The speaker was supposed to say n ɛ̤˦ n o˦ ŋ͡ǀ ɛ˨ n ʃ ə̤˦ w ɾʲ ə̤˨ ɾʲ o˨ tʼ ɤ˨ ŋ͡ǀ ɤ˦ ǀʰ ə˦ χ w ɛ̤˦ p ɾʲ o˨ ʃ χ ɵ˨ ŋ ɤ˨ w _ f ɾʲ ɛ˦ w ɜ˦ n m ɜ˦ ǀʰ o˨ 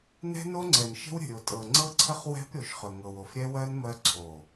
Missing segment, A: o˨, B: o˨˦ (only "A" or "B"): A